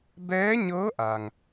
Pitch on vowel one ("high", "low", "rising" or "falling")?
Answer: rising